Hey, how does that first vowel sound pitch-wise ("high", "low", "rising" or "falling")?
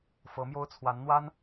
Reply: rising